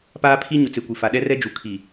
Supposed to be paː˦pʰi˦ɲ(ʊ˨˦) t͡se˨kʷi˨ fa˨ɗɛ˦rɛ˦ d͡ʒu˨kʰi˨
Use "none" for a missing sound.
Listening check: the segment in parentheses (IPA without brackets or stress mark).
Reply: ʊ˨˦